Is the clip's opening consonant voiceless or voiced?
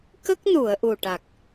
voiceless